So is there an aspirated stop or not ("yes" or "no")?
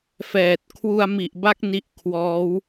yes